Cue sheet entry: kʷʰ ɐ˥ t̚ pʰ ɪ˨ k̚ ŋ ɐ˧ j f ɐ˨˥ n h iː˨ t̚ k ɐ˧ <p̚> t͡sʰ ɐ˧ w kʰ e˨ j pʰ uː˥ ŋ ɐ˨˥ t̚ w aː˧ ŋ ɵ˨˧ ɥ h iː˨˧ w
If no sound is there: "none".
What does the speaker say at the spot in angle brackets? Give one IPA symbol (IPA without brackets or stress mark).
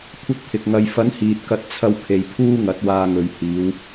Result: t̚